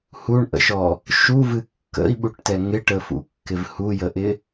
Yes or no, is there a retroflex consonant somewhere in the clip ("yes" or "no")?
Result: yes